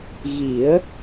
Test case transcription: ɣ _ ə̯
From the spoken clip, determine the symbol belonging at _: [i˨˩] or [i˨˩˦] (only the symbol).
i˨˩˦